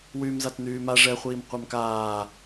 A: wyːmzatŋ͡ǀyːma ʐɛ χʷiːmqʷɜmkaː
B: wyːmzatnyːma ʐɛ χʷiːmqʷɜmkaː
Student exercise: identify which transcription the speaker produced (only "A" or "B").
B